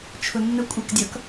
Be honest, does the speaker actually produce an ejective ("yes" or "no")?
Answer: yes